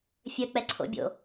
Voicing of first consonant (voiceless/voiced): voiceless